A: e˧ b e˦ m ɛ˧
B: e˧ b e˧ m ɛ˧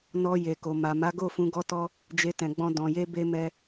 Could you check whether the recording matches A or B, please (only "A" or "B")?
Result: B